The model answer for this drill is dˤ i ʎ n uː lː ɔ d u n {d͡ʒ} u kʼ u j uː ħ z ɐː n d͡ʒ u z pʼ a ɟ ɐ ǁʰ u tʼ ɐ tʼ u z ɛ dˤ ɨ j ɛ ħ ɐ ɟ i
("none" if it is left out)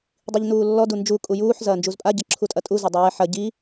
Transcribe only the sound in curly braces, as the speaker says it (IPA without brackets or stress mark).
d͡ʒ